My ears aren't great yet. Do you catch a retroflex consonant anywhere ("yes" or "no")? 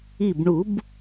yes